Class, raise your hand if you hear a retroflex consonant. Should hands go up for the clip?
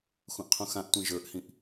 no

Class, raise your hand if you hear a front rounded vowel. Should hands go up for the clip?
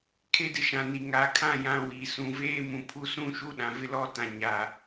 no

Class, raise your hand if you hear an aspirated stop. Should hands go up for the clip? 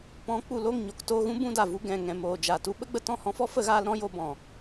no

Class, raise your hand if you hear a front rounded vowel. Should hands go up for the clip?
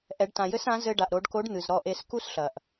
no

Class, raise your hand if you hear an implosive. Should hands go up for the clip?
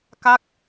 no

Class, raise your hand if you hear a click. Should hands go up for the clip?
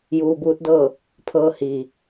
no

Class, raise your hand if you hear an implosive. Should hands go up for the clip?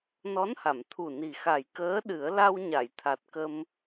yes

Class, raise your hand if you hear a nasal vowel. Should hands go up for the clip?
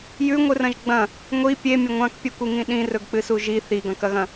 yes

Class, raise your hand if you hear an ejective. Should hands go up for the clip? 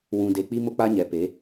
no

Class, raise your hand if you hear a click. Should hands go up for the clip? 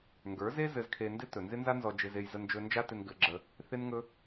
yes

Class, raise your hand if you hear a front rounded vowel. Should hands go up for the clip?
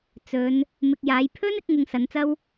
no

